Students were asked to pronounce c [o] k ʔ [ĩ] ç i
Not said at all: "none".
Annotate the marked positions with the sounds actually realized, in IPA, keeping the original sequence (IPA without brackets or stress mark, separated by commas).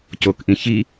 o, ĩ